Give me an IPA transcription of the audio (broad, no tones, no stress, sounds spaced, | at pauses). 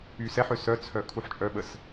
y s ɛ ħ ø s œ t͡sʰ œ kʰ u ħ t͡ʃʼ œ ɓ ə s